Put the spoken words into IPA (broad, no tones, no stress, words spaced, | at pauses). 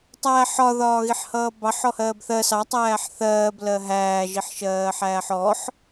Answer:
tˤæːħɒ ðɒːɣiħhʌːbɑħ ɔhɜːbθɜ sɑ tˤæːħθɜːb lɜɦæː ʒiħʃɜːħæːħɔħ